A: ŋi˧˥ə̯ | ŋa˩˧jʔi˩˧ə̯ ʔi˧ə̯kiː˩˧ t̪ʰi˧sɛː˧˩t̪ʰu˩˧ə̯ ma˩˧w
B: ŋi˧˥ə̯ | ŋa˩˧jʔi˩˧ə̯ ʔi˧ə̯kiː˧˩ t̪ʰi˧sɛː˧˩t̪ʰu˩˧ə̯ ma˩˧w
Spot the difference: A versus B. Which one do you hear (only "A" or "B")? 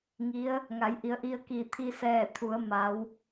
B